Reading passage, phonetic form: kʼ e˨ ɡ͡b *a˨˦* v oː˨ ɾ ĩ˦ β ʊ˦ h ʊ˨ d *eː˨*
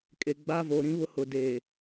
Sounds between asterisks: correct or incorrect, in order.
incorrect, correct

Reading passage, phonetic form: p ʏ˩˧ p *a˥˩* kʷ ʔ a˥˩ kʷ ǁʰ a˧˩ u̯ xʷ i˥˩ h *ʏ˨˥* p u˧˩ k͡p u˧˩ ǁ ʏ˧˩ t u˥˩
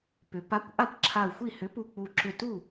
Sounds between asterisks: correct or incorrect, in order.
incorrect, correct

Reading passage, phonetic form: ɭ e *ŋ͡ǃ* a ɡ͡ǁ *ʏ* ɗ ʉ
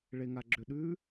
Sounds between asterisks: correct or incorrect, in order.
incorrect, correct

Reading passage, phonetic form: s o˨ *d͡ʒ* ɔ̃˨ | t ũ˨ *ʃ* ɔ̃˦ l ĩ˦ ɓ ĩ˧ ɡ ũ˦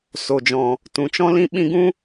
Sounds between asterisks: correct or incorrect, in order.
correct, incorrect

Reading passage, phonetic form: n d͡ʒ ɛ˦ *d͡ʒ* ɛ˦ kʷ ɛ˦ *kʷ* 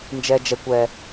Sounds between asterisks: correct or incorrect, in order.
correct, incorrect

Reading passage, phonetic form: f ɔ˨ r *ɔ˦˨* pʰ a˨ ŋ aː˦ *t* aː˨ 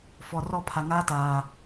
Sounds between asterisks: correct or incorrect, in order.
correct, correct

